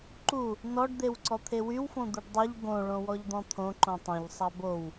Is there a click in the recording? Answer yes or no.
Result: yes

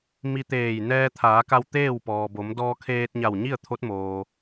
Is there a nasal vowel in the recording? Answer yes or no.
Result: no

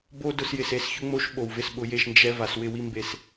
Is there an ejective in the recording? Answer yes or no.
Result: no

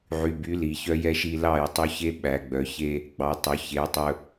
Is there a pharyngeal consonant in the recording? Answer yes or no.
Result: yes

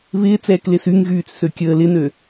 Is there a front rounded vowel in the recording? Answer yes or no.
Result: yes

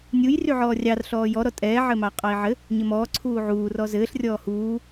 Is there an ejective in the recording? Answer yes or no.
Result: yes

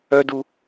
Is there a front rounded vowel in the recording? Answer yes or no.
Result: yes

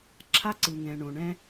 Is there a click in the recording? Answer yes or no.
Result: yes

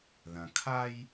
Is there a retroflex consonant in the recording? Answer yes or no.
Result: no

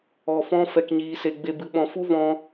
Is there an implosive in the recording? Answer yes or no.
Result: yes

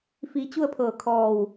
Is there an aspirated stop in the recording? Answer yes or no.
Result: yes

